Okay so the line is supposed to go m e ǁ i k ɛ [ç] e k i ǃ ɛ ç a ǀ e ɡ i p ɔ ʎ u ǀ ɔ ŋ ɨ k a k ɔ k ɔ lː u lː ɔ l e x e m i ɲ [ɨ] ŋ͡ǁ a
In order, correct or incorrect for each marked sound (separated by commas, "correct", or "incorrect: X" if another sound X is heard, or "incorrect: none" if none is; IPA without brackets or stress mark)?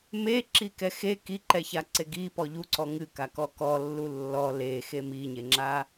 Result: incorrect: x, incorrect: e